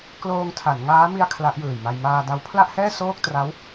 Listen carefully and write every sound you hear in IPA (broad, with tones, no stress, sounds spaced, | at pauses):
k l oː˧ ŋ tʰ a˩˦ n ŋ aː˦˥ m i˧ a̯ kʰ l a˦˥ ʔ j ɯː˨˩ j m a˧ j m aː˧ d a˦˥ w pʰ l a˥˩ ʔ h ɛː˥˩ s oː˥˩ k̚ t r a˦˥ w